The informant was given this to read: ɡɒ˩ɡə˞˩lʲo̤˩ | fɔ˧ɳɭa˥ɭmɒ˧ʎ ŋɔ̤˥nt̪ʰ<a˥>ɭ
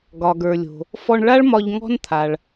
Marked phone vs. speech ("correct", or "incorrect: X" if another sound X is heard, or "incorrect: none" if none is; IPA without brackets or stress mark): incorrect: a˩